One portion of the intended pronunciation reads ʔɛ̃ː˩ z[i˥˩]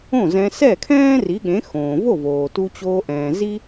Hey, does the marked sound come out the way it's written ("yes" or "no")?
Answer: no